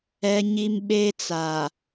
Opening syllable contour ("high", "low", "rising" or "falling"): high